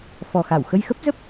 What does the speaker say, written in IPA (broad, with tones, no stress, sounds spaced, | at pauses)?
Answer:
f ɔ˨˩ x a˧˩ w x ə˧ j x ə˦˥ p̚ z ə˦˥ p̚